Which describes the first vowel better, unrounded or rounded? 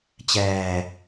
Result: unrounded